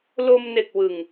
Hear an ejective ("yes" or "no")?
no